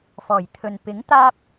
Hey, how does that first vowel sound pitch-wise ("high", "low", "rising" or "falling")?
low